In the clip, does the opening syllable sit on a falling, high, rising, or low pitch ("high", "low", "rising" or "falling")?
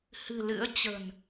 low